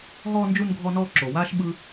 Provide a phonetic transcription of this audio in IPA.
ɦɔː˧nd͡ʒu˧n ɡʱɔ˧nɔː˧ ǁo˩waː˧ʃ ɓɯ˧

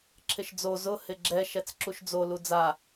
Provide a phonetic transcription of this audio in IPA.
ǁʰɪʃd͡zo zʊ hɪɡ͡ǁɛ ʃɛt͡sǁuʃd͡zo lud͡za

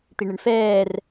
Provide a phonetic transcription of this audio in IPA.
t̪iɳɪɳfɛːr

